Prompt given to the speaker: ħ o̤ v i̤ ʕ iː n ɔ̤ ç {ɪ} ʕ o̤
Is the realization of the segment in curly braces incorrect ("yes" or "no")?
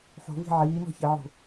yes